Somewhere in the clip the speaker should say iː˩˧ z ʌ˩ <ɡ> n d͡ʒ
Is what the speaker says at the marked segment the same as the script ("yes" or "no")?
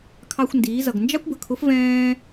yes